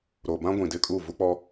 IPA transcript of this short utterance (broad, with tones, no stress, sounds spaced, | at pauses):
ɾ o˨ b ã˦ ɡʷ ĩ˨ d ɪ˦ kʼ u˦˨ v u˦ k͡p ɔ˦